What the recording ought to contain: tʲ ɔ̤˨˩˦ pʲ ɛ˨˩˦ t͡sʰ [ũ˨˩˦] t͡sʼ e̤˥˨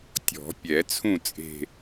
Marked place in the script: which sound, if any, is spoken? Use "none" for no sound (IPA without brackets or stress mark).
ũ˥˨